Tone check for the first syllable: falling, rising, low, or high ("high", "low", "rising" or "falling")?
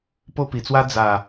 high